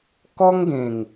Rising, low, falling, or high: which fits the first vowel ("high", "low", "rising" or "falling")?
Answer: high